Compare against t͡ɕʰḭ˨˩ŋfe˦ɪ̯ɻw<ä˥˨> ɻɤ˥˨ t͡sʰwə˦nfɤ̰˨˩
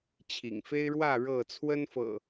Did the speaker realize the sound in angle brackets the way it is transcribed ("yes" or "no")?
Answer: yes